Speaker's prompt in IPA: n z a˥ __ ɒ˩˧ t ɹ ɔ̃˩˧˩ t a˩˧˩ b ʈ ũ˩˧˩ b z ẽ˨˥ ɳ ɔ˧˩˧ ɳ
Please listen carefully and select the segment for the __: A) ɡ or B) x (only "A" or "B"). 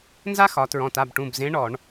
B